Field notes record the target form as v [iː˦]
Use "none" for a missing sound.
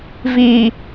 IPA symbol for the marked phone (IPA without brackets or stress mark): iː˨